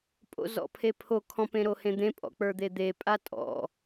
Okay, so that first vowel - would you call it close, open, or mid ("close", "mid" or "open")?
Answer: mid